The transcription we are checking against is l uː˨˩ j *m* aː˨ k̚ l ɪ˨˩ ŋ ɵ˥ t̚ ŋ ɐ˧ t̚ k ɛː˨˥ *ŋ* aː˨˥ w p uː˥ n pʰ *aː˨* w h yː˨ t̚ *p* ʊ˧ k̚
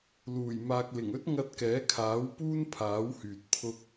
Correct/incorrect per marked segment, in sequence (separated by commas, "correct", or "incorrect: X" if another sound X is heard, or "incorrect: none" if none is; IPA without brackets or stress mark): correct, incorrect: kʰ, incorrect: aː˨˥, incorrect: pʰ